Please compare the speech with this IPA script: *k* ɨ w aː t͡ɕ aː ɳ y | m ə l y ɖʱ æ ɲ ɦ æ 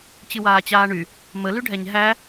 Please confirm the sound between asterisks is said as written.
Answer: no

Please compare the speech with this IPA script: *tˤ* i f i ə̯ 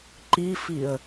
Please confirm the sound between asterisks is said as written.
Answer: no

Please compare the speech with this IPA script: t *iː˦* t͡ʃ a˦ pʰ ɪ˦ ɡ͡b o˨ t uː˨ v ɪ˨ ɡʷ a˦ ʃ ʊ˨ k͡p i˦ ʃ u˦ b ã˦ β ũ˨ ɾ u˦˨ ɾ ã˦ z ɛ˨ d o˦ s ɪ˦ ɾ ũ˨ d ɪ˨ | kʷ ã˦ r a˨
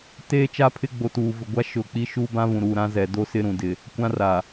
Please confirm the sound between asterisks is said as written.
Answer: no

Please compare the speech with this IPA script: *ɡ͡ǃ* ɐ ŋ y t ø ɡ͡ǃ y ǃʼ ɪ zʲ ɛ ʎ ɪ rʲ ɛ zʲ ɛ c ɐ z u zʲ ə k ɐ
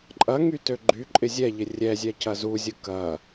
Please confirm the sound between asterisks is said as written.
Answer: no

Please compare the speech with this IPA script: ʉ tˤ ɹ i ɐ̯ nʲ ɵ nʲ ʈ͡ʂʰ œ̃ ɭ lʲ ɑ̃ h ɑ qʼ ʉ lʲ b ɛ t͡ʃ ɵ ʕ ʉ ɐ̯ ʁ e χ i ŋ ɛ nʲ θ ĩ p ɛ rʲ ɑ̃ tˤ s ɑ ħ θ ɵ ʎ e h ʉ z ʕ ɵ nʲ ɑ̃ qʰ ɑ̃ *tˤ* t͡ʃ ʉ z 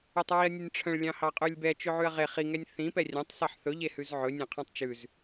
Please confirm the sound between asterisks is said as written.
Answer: yes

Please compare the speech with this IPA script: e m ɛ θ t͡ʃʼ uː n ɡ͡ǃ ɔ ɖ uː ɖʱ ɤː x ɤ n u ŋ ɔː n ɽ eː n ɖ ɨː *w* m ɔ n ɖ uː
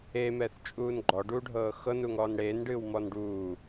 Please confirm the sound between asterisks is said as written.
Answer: yes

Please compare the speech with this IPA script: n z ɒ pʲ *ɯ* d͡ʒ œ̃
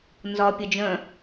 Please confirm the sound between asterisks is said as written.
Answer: no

